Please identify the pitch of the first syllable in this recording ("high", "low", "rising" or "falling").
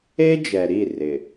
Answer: high